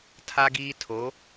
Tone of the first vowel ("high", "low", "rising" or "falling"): high